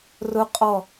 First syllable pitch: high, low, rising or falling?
high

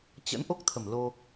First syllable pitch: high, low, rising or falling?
rising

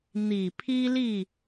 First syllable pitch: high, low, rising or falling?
low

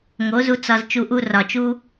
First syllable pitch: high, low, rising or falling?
rising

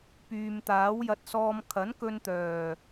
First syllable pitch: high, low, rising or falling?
low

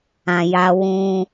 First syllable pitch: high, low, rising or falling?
low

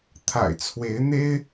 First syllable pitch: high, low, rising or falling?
low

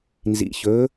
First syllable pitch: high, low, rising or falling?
rising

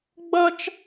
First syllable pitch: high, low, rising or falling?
high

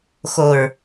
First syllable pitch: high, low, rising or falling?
low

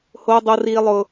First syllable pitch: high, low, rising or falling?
high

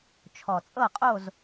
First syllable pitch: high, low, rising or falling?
low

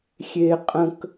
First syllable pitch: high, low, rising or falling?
high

